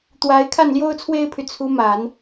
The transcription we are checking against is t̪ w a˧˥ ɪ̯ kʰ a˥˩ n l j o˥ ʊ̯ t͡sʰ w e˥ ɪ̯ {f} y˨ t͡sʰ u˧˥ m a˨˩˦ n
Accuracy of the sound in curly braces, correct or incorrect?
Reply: incorrect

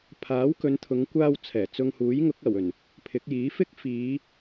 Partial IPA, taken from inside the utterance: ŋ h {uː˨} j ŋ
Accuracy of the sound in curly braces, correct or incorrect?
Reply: incorrect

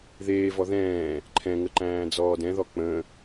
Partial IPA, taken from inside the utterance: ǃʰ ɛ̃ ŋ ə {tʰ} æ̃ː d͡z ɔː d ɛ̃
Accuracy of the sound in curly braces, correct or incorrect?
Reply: incorrect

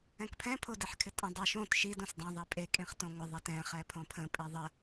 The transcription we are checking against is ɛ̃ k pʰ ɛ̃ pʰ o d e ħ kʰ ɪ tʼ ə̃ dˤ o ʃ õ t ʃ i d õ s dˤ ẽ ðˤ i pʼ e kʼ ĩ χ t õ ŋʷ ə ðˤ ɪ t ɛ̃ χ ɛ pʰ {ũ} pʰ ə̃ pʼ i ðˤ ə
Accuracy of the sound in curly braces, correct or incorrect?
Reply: incorrect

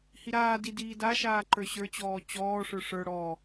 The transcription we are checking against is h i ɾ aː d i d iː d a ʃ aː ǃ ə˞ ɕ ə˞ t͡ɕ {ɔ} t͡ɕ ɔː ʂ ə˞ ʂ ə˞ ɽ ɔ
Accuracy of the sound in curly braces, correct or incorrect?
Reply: incorrect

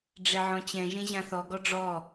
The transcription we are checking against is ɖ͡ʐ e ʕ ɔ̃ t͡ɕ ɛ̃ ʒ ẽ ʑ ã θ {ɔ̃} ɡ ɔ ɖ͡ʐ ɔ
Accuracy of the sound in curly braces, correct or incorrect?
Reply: incorrect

